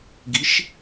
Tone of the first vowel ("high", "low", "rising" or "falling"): rising